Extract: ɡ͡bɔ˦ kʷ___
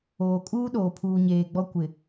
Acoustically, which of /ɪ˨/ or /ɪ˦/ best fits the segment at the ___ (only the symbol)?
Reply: ɪ˨